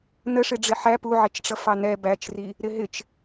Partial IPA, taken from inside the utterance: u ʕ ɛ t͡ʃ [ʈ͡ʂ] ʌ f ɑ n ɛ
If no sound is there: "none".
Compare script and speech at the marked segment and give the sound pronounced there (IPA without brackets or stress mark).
ʈ͡ʂ